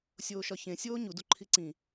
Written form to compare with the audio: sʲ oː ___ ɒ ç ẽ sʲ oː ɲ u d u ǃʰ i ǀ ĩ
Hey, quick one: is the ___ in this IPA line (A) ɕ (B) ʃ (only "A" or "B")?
B